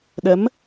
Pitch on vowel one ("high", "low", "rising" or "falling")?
rising